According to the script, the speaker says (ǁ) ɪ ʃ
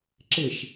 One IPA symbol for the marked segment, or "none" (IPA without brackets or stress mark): ǁ